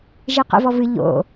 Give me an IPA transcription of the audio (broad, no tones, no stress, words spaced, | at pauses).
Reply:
ʒeqɛ̰vɔvɨ ʎo̰